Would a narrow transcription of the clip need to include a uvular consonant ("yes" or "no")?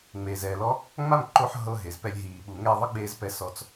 no